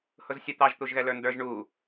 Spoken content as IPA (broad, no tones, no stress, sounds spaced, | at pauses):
h ʊ z sʲ ʊ t̪ ɑ ʒ t̪ u ʒ ɣ ɛ l ə˞ n d ə˞ ʒ ɳ u